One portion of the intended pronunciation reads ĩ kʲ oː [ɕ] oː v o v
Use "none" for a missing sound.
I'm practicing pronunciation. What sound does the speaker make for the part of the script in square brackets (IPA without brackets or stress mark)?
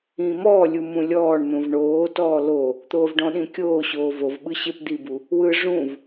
ɕ